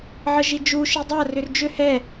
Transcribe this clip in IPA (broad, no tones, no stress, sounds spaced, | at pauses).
ʕ ə ʒ i d͡ʒ u ʃ i dˤ a r ʏ r d͡ʒ ʏ h ɛ